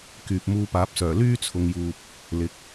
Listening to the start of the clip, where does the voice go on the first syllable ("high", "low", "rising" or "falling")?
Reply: low